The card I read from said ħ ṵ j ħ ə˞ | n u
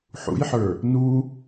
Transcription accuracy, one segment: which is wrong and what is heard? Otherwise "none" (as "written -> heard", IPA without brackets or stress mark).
none